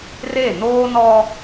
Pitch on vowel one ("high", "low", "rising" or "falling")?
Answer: falling